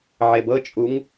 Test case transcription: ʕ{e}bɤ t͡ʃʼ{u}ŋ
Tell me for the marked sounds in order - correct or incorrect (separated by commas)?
correct, correct